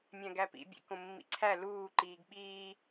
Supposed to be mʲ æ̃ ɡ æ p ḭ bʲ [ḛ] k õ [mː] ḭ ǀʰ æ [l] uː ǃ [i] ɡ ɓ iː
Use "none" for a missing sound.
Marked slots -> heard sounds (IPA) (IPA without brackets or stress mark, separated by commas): ḛ, mː, l, iː